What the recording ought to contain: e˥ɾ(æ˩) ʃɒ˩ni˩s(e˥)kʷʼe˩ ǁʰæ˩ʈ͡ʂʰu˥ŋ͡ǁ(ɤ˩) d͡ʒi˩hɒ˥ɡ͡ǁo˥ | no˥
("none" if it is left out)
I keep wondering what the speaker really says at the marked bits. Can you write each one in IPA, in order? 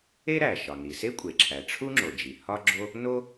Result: æ˩, e˥, o˩

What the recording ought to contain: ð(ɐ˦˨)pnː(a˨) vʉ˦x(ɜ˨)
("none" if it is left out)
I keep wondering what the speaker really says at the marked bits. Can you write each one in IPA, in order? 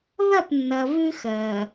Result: ɐ˦˨, ɐ˨, ɜ˨

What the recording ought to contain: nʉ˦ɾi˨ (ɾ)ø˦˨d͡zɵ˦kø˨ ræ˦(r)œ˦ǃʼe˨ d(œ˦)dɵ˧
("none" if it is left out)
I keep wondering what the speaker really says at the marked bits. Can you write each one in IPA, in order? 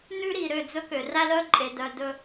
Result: ɾ, l, œ˨

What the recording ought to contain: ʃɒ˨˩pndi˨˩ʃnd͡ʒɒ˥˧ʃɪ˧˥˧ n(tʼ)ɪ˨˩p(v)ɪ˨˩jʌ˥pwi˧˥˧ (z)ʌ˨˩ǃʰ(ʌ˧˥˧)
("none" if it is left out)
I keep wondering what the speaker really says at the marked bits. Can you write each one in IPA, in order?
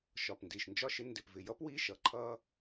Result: d, v, ʃ, ʌ˥

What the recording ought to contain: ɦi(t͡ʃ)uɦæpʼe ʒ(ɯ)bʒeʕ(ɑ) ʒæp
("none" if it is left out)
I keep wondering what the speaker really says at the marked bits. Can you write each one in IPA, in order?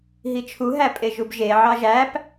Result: t͡ʃʰ, u, ɑ

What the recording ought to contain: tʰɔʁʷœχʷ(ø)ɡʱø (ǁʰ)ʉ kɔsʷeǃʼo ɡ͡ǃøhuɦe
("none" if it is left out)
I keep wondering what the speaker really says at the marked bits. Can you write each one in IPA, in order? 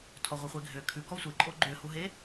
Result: e, kʰ

